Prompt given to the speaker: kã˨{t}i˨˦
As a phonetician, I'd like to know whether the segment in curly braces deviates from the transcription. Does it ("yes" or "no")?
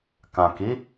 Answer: yes